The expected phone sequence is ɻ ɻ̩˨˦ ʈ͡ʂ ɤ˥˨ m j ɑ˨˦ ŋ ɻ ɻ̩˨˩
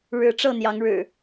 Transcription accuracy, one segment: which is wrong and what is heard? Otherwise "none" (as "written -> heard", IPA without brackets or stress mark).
m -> n̪